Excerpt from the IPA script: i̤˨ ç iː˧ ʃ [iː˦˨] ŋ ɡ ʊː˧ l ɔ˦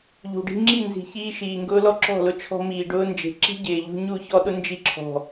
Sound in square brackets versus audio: incorrect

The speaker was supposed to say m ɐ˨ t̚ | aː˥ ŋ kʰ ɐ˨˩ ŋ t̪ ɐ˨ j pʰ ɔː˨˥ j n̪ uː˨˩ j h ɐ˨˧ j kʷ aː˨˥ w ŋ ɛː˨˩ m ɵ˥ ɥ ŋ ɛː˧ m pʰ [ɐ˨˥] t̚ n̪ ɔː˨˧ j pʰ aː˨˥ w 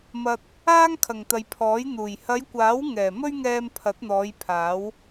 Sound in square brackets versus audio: correct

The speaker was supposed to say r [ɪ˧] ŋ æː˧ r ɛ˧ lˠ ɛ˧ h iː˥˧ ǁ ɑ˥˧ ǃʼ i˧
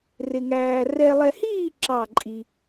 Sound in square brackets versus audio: correct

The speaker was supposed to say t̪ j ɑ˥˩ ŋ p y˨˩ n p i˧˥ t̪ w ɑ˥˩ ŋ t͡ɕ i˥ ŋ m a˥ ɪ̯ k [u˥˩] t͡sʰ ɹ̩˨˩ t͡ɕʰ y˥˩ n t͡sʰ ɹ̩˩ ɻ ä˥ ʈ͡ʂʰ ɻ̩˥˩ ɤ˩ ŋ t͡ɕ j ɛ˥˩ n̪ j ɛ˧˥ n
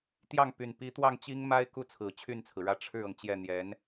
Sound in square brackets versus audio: incorrect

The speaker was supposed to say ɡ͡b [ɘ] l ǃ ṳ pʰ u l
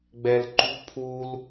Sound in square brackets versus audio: incorrect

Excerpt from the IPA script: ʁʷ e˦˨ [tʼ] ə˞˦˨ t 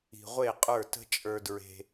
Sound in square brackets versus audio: incorrect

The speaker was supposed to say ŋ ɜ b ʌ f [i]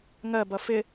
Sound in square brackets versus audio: incorrect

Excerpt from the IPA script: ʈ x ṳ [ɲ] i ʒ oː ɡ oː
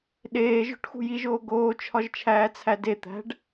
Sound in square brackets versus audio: incorrect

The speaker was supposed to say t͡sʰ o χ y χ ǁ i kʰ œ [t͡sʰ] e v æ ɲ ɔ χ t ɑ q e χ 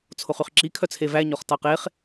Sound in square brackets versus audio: correct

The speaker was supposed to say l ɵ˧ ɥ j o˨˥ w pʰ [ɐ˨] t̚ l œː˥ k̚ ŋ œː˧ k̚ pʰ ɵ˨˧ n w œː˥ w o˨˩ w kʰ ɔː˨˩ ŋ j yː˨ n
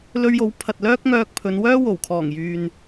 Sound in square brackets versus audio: correct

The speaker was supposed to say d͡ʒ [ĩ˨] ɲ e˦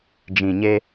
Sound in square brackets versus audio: correct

